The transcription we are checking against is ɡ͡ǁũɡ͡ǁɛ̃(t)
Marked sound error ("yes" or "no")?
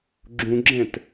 no